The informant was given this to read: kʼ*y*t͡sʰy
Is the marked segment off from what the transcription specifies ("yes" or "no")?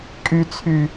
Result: no